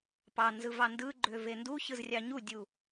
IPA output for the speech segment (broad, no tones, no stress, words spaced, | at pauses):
pɑnzɯ vɑndɯɡ͡ǃø venduçɯz rʲɑɲudʲu